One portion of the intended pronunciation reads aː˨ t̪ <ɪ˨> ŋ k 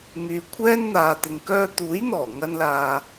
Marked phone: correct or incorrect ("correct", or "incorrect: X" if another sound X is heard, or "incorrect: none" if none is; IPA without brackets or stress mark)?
correct